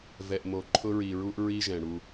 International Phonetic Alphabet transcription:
v ɛ˨ ʔ m o˨ ǃʰ ʊ˦ ɹ i˨ ɹ u˦ ʔ ɹ i˦ ʒ ɛ̃˨ ɽ u˦

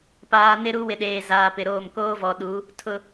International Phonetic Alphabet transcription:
p aː˨ n ɪ˦ ɾ u˦ w ɪ˨ ɗ eː˨ z aː˨ p ɪ˨ ɾ oː˦˨ m k oː˦ v ɔ˨ ɗ u˨˦ | tʰ ʊ˨

